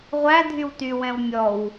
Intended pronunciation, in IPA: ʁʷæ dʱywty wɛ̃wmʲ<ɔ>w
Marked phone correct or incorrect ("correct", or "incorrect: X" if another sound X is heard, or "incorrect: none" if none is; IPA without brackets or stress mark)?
correct